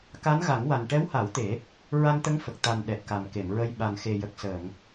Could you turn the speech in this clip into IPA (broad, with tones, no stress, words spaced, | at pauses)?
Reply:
ka˧˥nɣa˨˩˦ŋwa˨˩n ʈɛ˧˥wha˨˩˦w t̪e˨˩˦ | ɹa˧nt̪ə˧˥ŋ fə˨˩k̚ t̪a˨˩n ɗɛ˨˩t̚ka˨˩mke˨˩˨mɹə˧j ɓa˨˩nxe˨˩jə˨˩k̚ səː˨˩˨ŋ